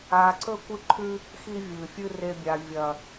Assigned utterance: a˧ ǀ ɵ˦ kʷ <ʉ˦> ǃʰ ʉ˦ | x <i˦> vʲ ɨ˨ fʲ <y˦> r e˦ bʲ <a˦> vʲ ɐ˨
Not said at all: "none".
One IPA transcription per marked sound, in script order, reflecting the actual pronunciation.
ɨ˦, i˦, ɨ˦, a˧

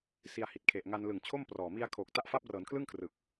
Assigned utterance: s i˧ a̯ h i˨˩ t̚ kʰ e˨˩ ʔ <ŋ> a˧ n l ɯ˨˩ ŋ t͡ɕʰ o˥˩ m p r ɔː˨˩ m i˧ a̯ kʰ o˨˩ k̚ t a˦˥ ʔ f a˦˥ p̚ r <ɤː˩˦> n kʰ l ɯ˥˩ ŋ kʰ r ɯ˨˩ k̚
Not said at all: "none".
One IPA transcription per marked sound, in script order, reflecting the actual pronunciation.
ŋ, ɤː˩˦

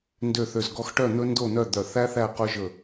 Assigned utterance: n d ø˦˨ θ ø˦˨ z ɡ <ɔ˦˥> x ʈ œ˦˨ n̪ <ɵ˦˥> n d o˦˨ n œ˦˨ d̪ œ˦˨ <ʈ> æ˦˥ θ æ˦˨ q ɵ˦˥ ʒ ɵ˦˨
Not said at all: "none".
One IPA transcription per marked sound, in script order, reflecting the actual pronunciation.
ɔ˦˥, ɵ˦˥, θ

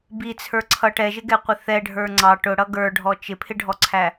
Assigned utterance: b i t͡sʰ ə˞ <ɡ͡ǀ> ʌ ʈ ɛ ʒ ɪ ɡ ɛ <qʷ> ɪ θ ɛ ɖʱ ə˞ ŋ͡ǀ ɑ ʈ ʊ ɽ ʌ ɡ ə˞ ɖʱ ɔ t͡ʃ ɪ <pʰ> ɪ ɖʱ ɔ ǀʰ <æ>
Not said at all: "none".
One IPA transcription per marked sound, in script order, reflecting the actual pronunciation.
ǀʰ, qʷ, pʰ, æ

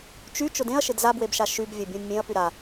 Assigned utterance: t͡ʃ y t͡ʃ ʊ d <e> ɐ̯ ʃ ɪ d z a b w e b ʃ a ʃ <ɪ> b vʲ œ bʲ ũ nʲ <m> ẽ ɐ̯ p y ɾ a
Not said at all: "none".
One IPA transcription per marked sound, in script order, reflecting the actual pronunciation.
ẽ, y, mʲ

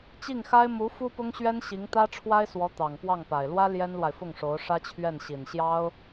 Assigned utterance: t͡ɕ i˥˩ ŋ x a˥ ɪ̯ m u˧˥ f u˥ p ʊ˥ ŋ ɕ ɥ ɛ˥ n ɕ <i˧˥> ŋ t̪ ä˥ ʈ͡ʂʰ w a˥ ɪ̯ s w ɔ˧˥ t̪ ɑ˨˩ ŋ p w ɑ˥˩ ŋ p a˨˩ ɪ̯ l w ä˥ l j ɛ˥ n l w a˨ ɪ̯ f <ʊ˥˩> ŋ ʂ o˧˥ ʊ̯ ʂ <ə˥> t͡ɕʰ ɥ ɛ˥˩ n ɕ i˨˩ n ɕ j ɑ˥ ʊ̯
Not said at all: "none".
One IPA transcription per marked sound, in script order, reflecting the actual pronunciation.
i˧˥, ʊ˥˩, ä˥

